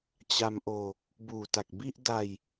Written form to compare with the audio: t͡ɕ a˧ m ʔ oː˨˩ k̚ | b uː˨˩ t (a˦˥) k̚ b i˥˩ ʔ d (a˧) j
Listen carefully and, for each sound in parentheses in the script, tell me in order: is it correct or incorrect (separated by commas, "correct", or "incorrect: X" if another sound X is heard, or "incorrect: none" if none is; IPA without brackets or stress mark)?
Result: incorrect: a˨˩, correct